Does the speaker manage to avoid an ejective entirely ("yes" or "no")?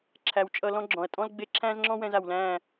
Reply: no